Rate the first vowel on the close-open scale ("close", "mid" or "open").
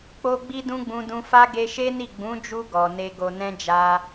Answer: mid